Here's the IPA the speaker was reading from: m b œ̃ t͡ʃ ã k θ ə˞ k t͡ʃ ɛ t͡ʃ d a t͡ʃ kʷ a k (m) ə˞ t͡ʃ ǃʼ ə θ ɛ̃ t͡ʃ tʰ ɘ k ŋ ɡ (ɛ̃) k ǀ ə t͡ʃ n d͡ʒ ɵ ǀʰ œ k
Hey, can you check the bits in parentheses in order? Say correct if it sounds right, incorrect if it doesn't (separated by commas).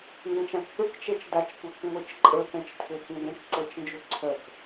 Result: incorrect, correct